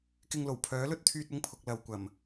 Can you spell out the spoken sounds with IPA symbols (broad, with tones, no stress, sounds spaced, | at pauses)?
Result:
k ɪ˧ ŋ l o˨˩ w pʰ œː˨˥ l ɵ˧ t̚ t̪ʰ yː˧ t̚ ʊ˧ ŋ pʰ ʊ˨ k̚ l ɐ˨ w kʷ ɐ˨˩ m